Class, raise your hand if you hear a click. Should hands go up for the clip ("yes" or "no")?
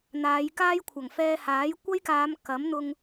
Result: no